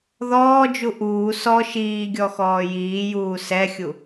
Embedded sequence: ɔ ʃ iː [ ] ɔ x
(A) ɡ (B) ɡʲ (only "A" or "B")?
B